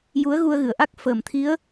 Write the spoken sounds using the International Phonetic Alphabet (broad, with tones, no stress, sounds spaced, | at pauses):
j u˧˥ ə̯ ɣ u˧ ə̯ ɣ ɨ˨˩˨ ə̯ ʔ a˦˥ k̚ f əː˨˩˨ m t̪ʰ i˧˥ ə̯